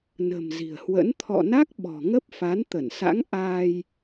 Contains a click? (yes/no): no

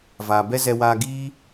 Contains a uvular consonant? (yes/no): no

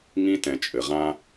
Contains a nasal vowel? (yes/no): yes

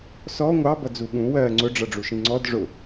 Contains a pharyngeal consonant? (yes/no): no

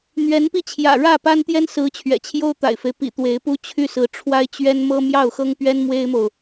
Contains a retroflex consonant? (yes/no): yes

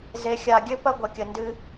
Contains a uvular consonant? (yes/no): no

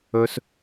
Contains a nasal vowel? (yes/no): no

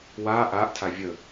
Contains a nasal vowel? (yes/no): no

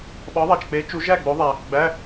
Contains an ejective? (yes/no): no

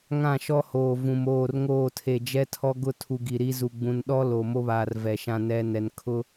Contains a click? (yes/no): no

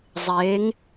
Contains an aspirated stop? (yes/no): no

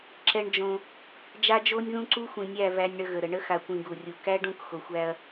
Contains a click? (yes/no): yes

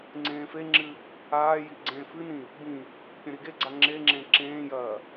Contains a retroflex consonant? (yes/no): no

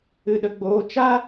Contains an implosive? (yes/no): yes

